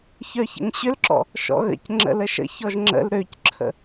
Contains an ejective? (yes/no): no